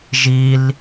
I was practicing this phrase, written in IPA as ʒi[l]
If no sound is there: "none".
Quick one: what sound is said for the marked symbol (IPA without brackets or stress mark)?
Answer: l